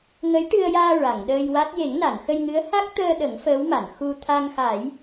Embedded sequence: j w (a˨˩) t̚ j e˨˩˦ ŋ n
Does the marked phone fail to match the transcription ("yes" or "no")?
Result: yes